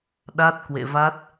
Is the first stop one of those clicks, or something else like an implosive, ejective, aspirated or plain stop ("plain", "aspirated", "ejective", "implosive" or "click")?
implosive